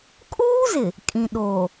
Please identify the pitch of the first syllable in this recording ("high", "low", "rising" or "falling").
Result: high